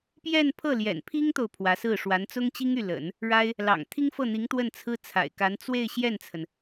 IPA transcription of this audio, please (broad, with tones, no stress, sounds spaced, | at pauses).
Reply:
p j ɛ˥˧ n pʰ ɤ˥˩ l j ɛ̰˨˩ n pʰ i˥ ŋ t̪ o˨ ʊ̯ pʰ w ä˧˥ s ɹ̩˥˩ ʂ w a˧˥ n t͡s ʊ˥ ŋ t͡ɕ i˥ ŋ y˥˩ l ə̰˨˩˦ n | ɻ a˥ ɪ̯ | l ɑ̰˨˩ ŋ t̪ʰ i˥ ŋ f ɤ˥˩ n̪ i˧˥ ŋ t̪ w ə˥˩ n t͡sʰ ɹ̩˥ t͡sʰ a̰˨˩ ɪ̯ k a˧˥ n t͡s w e˥˧ ɪ̯ ɕ j ɛ˥˩ n t͡sʰ ə˩ n